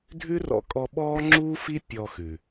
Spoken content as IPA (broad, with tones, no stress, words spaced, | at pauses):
dʱʉ˦rɔ̰˧kʼɔ˧ ɓɔː˦ŋ͡ǁuː˦fi˦ pʲɔ˧xʉ˨